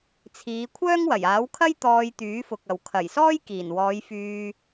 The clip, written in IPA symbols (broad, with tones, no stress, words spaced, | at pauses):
t͡sʰiː˨˧ kʷʰœː˥ŋwɐ˨˩jaː˨˥w kʰɐ˥j t̪ɔː˧jt̪yː˨˥fʊ˨k̚ɐ˨w kʰɐ˨˩jsɔː˥j kiː˨˩nwɔː˨˧jfyː˧